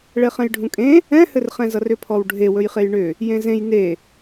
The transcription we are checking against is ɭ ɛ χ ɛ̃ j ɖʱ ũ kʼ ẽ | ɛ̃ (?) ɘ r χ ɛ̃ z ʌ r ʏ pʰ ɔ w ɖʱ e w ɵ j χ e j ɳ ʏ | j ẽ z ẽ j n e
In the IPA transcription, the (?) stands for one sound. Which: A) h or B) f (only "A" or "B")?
A